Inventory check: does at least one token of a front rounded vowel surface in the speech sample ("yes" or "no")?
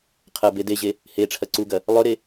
no